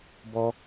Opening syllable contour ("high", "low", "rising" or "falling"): high